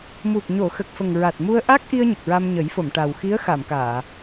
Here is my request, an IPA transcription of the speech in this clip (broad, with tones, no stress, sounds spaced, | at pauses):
m u˨˩ k̚ ɲ o˨˩˨ x ə˨˩ k̚ f ə˨˩ ŋ ɹ a˨˩ t̚ m u˧ ə̯ ʔ a˦˥ k̚ ʔ i˧ ə̯ ɲ ə˨˩ k̚ ɹ a˧ m ɲ ə˨˩˦ j f o˨˩˨ m ʈ a˨˩ w x i˧˥ ə̯ x a˨˩˨ m k aː˨˩˨